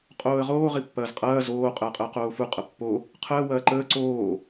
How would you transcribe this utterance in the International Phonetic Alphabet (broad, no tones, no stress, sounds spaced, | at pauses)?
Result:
qʼ oː ə̯ ʁ oː ʁ i pː ɐː z qʼ ɐː z oː qʼ əː qʼ əː q oː f u qʼ ɐ pː o | qʰ əː w ɐː ǃ əː ǀ oː